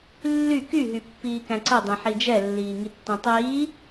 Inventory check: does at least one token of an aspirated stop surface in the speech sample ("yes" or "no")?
no